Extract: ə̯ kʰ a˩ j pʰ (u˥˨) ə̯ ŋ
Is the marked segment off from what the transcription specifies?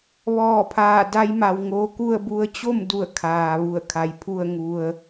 no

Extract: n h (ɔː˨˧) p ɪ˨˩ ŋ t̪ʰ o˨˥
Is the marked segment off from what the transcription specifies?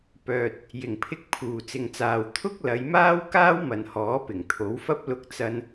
yes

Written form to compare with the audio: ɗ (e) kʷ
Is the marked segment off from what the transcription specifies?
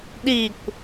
yes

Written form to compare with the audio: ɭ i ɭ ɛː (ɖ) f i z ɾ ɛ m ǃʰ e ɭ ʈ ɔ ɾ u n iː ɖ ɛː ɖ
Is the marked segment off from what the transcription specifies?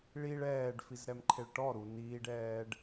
no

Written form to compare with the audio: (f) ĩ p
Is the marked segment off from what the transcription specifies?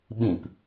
yes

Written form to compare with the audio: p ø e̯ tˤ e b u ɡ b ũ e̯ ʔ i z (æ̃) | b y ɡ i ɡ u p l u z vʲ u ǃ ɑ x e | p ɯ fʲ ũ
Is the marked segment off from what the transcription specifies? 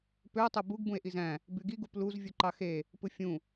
no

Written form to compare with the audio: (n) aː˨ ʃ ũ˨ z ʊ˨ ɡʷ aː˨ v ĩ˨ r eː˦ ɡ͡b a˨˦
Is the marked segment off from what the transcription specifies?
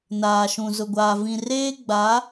no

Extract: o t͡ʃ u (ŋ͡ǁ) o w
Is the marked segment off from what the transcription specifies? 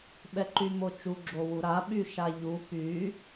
yes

